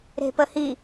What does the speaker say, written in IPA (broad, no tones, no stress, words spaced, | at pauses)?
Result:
ɾe̤pəhi